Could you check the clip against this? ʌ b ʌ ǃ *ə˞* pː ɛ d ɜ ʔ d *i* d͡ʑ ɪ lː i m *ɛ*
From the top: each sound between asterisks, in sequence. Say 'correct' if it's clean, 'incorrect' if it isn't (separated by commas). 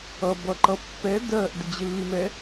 incorrect, incorrect, correct